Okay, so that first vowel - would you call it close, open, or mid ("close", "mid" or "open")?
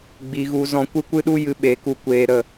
close